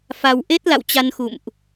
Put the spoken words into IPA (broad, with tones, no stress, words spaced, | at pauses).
fa˧w ʔe˦˥t̚la̰˧˨w t͡ɕa˧nxṵ˧˨mʔ